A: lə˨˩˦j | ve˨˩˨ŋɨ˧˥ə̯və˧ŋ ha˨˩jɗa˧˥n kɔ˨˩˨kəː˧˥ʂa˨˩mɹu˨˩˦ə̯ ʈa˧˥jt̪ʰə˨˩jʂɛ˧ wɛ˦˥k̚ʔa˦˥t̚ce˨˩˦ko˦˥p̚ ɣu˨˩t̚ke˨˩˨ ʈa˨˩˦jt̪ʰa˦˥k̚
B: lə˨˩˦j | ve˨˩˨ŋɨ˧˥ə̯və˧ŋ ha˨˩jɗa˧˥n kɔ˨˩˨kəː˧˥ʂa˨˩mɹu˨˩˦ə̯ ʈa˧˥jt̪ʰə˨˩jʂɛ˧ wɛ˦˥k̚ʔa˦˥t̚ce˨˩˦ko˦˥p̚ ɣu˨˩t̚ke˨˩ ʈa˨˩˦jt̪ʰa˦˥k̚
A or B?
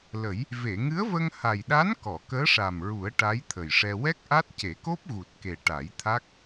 B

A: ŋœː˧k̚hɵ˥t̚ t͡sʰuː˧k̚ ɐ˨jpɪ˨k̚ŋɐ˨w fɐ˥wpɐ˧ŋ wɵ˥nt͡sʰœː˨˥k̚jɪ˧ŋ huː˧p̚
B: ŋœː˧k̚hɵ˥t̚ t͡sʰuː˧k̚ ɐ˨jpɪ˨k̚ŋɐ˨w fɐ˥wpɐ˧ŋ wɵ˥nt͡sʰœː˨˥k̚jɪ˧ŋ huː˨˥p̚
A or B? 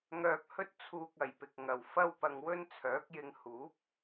B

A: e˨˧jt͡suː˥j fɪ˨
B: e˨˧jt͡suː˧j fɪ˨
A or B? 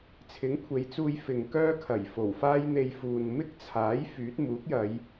B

